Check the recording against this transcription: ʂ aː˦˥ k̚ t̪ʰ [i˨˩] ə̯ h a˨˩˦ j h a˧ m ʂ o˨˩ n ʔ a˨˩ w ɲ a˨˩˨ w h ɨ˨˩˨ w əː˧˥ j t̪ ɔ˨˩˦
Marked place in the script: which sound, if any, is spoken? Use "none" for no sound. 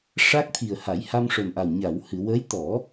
i˨˩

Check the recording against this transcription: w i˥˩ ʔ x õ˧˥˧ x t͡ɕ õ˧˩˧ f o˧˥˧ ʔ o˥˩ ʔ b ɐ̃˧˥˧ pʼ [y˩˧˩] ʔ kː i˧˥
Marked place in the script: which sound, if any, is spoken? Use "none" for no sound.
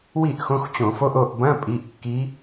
i˩˧˩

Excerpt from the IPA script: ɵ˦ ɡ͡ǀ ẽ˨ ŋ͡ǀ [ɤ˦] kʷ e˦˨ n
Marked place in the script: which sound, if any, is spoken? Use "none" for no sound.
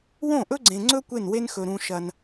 ɵ˦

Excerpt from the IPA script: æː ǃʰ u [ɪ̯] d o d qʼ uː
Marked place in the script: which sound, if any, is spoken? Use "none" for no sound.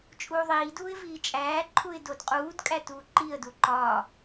ɪ̯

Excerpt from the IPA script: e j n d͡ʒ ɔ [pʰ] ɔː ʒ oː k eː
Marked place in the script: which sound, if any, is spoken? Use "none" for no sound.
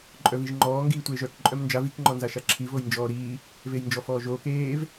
f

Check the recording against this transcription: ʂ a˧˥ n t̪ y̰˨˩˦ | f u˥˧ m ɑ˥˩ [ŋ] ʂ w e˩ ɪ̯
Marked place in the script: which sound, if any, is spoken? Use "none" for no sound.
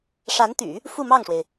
ŋ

